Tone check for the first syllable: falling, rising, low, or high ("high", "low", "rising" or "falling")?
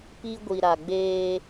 high